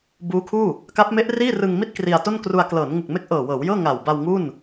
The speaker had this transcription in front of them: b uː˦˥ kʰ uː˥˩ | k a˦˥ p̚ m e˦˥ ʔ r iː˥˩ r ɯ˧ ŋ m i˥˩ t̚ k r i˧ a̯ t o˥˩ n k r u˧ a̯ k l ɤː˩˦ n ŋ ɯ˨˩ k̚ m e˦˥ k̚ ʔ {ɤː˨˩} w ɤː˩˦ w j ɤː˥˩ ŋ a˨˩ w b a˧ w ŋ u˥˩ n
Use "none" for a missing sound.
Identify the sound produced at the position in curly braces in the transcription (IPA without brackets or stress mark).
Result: ɤː˨˩